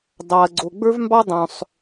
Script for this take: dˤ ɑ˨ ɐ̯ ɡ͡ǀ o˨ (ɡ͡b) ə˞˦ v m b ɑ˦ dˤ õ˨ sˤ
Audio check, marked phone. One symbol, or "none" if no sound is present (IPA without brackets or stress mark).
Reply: ɡ͡b